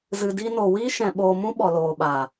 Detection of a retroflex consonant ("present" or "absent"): absent